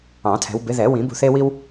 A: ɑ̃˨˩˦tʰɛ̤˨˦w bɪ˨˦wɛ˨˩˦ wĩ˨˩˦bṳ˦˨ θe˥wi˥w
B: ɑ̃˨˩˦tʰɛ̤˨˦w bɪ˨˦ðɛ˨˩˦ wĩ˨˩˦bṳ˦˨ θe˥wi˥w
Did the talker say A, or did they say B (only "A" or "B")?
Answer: B